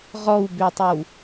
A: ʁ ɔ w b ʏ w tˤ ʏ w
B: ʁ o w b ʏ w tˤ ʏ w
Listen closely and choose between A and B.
A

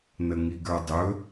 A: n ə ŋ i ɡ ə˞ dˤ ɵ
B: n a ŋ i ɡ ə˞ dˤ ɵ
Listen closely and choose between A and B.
A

